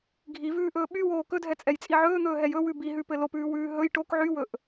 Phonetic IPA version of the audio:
ɡʱ i v ʉː ʔ ɵː ɓ y w oː k ɵ dʱ ɛ t͡sʼ ɛ j t͡sʼ i ʕ ɵː n̪ ɵː ɦ ɛ j ɵ w ʉ b i ɦ ʉ p ɘ l o p ʉː w ʉː ɦ ɵ j ʈ o k ʕ y w ɵ ʔ

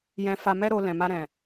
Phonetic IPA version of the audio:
j ɛ̃˧ f a˧ m ɛ˦ ɾ o˧ l ɛ̃˨ m a˧ ɾ ɛ̃˨

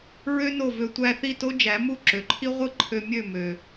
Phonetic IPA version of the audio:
ɹ ø˥ n o˥˩ v ø˧ tʷ æ˧ θ i˥˩ t o˥ d͡ʒ æ˩˥ m u˥˩ ǁ ø˩ ǃʰ i˥ ʁʷ ɯ˥ ǃʰ ø˧ mʲ ø˥˩ m ø˩

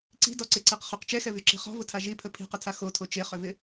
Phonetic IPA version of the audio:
ǀ i̤ d ɔ ǀ e ǀ e q χ ʏ q t͡ʃ ɛ x ɛ v y ǁ i̤ χ ɔ̤ v ʊ tʰ a ʒ i pʰ ə pʰ i̤ q ə tʰ a x o tʰ o t͡ʃ e χ ʏ v ɪ

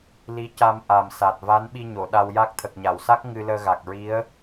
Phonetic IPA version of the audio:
l i˧˥ c a˧ m ʔ a˨˩ m s a˨˩ t̚ v a˧˥ n ɓ i˧ ɲ o˨˩˨ ɗ a˧ w j a˦˥ k̚ t̪ʰ ə˨˩ k̚ ɲ a˨˩˨ w s a˦˥ k̚ ŋ ɨ˧ l əː˧ ɣ a˨˩ k̚ ɹ i˧˥ ə̯

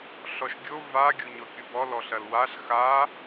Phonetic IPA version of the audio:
ɬ ɔ ʃ ɡʲ o v a ɡʲ o ɲ ɔ kʲ u b ɔ l ɔ ɬ ɐ l w a ɬ x a

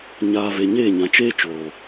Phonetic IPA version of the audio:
ɲ aː˨ v e˨ ɲ eː˦˨ ɲ ã˨ t͡ʃ eː˦ t͡ʃ oː˨

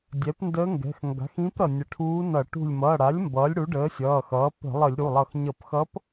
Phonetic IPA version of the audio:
dʲ ɛ˩˥ p n d əː˧˥ ŋ ɡ ɛ̤˩˧˩ x ŋ ɡ a̤˩˥ x ĩ˧˥ p ɾ ʌ˧˩ nʲ ə˧˩ ʈʰ uː˧˥ n ʌ˧˩˧ ʈ ṳ˧˩ lʲ m ʌ˩˧˩ ɽ a˩˥ lʲ m b ʌː˩˥ lʲ ɽ u˩˥ ɖ əː˩˥ sʲ ʌː˩˧˩ x ʌː˩˥ p ə̤˧˩˧ lˠ ə˧˩˧ lʲ ɾ u˩˧˩ lˠ ʌ˧˩ x ɲ ʌ˧˩˧ p x ʌ˧˥ p

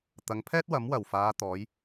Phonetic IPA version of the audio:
t̪ ɐ˨ ŋ pʰ ɛː˥ t̚ w ɐ˨˥ m w ɐ˨˩ w f aː˨˧ t̪ ɔː˨˧ j

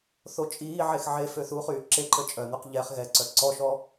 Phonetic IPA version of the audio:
θ o t͡ʃʼ iː ʕ e x ʕ e f ø θ u χ yː ǁ e ǃ ə t͡ʃʼ œ n̪ ø q ʎ ɛ χ ɣ ɛ ǀ œ ǀ ɔ ʃ ɔ

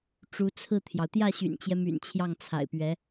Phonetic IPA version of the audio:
ʈ͡ʂ u˧˥ t͡sʰ ɹ̩˥˩ t̪ʰ j ɑ˩ ʊ̯ t̪ j ä˥˩ ɕ y̰˨˩ n t͡ɕ j ɛ˦ m y̰˨˩ n t͡ɕʰ j ɑ˥˩ ŋ t͡sʰ a̰˨˩ ɪ̯ p ɥ ɛ˧˥

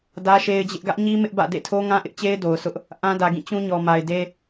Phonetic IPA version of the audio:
d ä˦ ʃ e˦ ɪ̯ d͡ʑ ɪ˦ ʔ ɡ ä˦ ʔ ɲ i˦ m ɪ˦ ʔ b ä̰˦˨ d ḛ˦˨ tʰ o˦ ŋ ã˦ ʔ ɪ˦ ʔ t͡ɕ e˦ ɪ̯ d o˨ ʊ̯ s ʊ˦ ʔ | ʔ ã˦ d ä˨ ɡ ĩ˦˨ t͡ɕ ũ˦ ɲ ɔ˨ m a˨ ɪ̯ d e˦

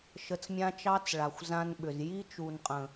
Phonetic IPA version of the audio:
ʃ ə˧ t͡s mʲ ã˦ t͡ʃ ɑ˦ t͡s ɭ a˨ xʷ z ã˦ n ɓ ʏ˨ z j i˦ t͡ʃ u˨ n qʼ ə̃˨

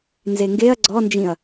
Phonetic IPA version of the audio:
n z e ŋ ɡ e ɐ̯ ɡ͡ǀ ɔ n d͡ʒ ĩ ɐ̯

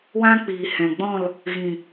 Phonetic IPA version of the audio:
w ã˦ k͡p iː˨ h ɛ̃˨ ɡ͡b ɔ̃˦˨ l | ɣ ĩ˨

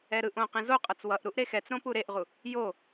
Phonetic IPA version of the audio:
ɛ ɾ ɯ ʔ õ q ẽ z o qʼ ʌ t͡s w ʌ ʔ ɾ u ʔ ɾ e x ɛ t͡s ɾ õ p u ɾ e ʔ ʁ u | j o

